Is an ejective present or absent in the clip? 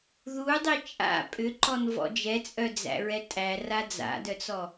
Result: present